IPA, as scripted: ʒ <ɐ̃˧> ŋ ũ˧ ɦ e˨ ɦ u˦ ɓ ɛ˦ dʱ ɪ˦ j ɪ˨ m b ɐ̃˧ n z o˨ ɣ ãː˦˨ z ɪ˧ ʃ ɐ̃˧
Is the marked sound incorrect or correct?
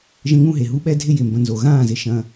incorrect